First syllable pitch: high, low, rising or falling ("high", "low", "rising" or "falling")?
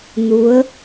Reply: rising